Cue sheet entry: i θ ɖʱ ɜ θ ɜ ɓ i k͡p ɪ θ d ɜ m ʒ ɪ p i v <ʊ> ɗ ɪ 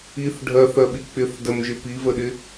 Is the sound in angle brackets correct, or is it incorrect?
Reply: incorrect